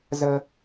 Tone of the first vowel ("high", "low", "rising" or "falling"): low